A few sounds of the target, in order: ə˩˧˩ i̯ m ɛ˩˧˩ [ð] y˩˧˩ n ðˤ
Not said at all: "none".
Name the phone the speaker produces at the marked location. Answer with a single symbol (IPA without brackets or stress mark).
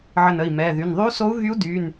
ð